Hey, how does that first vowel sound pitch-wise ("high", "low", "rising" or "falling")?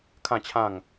falling